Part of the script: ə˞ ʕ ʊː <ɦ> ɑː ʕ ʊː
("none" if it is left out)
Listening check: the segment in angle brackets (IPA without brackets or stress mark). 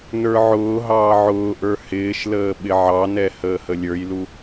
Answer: ɦ